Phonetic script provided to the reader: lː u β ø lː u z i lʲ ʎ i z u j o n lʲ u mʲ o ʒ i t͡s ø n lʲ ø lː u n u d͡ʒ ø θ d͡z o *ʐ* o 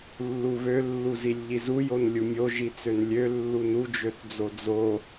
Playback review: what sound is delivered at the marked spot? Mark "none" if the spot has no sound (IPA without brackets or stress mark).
d͡z